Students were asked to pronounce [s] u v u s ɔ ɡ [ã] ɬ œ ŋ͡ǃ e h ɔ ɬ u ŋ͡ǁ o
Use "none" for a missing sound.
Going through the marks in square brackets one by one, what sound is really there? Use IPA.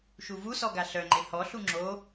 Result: ʃ, a

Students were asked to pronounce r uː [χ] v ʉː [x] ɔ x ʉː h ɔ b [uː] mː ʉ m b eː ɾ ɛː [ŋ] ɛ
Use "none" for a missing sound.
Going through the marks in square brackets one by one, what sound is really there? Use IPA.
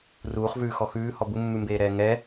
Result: χ, x, u, ŋ

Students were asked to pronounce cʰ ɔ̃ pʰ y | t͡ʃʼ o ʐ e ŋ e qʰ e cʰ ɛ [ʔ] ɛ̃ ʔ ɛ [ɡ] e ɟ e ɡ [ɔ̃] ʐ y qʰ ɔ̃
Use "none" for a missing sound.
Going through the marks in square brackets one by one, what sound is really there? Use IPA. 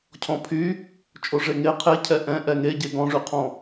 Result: ʔ, ŋ, ɔ̃

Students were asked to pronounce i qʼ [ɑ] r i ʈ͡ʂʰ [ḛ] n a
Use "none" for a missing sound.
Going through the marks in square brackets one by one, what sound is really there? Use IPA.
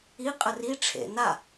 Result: ə, ḛ

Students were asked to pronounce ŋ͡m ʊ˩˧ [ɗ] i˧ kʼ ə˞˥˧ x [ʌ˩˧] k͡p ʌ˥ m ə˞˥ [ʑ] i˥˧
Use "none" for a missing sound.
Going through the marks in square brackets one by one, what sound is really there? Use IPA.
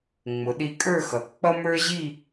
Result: ɗ, ʌ˩˧, ʑ

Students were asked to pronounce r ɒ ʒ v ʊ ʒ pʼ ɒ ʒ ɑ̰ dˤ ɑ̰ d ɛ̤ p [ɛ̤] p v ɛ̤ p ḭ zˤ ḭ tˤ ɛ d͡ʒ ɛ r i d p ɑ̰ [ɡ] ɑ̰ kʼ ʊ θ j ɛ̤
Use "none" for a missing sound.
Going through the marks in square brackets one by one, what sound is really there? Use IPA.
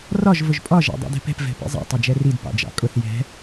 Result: ɛ̤, d͡ʒ

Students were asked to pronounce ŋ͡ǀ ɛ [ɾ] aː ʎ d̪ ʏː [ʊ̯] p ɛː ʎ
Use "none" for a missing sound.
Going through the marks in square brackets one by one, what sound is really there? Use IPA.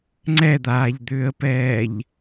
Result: d̪, ə̯

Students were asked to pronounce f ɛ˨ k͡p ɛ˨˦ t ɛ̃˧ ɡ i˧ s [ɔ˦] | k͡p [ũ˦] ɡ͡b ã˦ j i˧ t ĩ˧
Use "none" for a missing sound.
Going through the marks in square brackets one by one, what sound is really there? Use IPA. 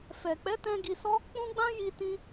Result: ɔ˦, ũ˦

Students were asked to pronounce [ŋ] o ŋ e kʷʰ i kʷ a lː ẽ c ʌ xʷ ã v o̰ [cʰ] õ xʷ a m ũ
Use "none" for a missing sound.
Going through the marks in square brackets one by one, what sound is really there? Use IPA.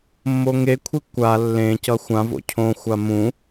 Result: mː, cʰ

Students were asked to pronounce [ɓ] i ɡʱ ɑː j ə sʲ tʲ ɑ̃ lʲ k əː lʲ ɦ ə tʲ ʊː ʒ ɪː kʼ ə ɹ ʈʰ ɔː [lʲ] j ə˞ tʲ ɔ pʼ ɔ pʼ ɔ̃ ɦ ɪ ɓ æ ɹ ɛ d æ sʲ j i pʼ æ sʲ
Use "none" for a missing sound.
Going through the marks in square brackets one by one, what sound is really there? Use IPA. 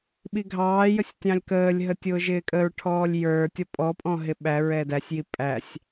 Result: ɓ, lʲ

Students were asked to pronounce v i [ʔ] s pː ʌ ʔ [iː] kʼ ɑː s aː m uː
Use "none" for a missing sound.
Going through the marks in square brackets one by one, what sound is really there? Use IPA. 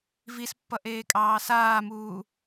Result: none, eː

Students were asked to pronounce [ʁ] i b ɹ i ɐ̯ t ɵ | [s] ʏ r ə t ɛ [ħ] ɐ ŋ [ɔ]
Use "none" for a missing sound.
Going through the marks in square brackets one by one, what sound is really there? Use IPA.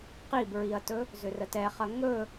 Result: q, z, χ, ɵ

